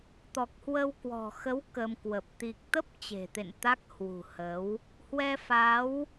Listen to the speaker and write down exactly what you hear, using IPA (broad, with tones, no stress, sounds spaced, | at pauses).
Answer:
t̪ ɔ˨˩ k̚ h w ə˧ w k w ɔ̤˨˩ x ə˨˦ w k ə˧ m k w ə˨˩ p̚ t̪ i˨˩ k̚ t̪ ə˦˥ p̚ t͡ɕ e̤˨˩ t̪ ḛ˧˨ n t̪ a˦˥ k̚ h w ṳ˨˩ h ə˨˦ w | h w ɛ˧ f a˨˦ w